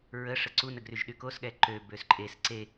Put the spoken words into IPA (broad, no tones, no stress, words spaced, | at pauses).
ɹə ʂəǀunəɡryʒ ɗykosɠɛ ǃø bøsǃʼes ǀe